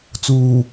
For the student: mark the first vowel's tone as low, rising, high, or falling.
low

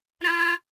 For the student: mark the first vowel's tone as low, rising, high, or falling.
high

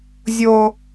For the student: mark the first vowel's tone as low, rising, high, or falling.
high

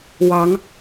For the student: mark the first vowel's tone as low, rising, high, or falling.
rising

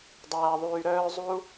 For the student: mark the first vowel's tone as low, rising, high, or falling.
low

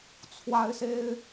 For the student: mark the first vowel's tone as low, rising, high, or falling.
high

